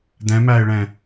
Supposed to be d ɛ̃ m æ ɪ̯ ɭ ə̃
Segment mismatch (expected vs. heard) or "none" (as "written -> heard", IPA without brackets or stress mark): ə̃ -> ɛ̃